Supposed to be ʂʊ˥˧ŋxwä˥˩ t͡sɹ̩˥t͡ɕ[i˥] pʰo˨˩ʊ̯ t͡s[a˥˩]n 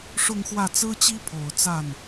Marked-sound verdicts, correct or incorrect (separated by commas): correct, correct